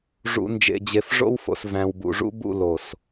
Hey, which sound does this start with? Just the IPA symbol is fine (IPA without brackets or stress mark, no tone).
ʐ